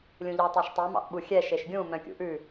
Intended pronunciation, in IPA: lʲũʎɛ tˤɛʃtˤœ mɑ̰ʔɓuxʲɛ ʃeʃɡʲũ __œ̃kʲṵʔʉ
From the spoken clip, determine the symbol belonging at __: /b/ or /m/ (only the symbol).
m